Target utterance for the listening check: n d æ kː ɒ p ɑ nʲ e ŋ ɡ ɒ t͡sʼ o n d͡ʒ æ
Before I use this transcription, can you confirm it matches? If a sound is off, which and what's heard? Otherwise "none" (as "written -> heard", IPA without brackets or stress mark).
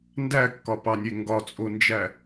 none